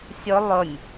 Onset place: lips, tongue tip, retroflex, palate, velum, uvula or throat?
tongue tip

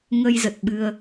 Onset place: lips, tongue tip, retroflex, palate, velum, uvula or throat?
velum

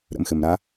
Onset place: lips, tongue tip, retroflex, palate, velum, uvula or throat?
tongue tip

